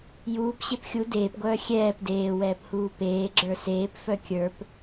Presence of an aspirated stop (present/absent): absent